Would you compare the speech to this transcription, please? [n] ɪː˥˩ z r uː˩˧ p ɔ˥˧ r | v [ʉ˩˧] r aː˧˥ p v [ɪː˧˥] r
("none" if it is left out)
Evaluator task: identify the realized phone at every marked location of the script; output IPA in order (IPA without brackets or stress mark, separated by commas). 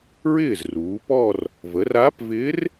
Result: ɹ, ə˩˧, ɪː˧˥